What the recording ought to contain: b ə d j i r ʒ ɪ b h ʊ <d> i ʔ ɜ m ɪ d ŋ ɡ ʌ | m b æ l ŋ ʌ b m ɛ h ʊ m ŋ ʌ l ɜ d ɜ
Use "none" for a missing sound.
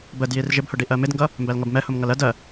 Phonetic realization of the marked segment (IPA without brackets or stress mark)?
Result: ɖ